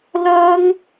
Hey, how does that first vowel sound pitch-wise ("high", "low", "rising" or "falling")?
high